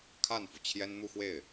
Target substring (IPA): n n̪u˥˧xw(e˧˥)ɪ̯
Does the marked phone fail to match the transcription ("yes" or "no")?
yes